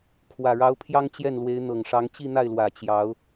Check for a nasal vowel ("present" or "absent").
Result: absent